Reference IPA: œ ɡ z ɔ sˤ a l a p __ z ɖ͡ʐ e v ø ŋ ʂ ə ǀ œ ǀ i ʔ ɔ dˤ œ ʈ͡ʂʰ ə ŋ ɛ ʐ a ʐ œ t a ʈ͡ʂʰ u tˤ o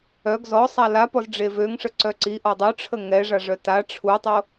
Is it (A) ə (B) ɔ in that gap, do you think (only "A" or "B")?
B